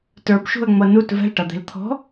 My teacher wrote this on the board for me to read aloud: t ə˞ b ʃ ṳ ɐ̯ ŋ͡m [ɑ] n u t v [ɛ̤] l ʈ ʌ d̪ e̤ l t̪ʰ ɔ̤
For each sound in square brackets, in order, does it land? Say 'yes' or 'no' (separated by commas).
no, yes